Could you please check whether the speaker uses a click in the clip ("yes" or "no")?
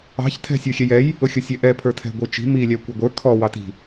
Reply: no